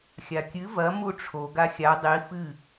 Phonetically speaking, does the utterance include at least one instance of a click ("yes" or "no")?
no